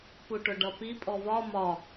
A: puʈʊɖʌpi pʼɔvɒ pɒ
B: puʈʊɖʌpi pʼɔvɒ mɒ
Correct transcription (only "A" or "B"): B